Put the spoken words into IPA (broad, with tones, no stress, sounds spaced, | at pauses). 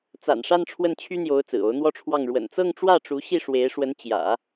t͡s a̰˨˩ n ʂ a˥˧ n ʈ͡ʂʰ w ə˥˩ n t͡ɕʰ y˥ n̪ j o˧˥ ʊ̯ t͡s ɹ̩˨˩ o˧˥ ʊ̯ n̪ w ɔ˥ ʈ͡ʂʰ w ɑ˥˩ ŋ ɻ w ə̰˨˩ n t͡s ɤ˥˧ ŋ ʈ͡ʂ w ä˥˩ ʈ͡ʂ u˧˥ ɕ i˥˩ ʂ w e˧˥ ɪ̯ ʂ w ə˧˥ n t͡ɕ j ä̰˨˩˦